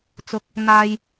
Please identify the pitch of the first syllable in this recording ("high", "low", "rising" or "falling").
rising